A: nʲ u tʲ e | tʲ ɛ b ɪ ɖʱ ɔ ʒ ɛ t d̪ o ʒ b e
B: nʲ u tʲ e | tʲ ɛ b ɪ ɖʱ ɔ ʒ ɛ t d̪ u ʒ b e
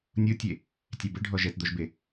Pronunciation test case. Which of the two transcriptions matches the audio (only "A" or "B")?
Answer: A